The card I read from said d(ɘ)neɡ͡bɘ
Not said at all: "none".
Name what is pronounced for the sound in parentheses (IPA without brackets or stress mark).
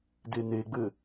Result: e